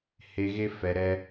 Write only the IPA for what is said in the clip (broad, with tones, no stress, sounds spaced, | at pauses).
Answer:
h e˧ ɣ e˦ f ɛ˧ ɾ ɛ˦